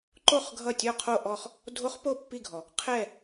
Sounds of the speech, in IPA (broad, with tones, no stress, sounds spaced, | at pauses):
ǃ o˥˩ χ ɡʱ ʌ˥˩ tʲ ɔ˥˧ qʰ o˥˧ ʔ ɔ˥˧ χ | dʱ o˦˥ χ p o˥˩ pː i˥˧ ɡʱ ɔ˨˩˦ | qʰ ɛ˥˧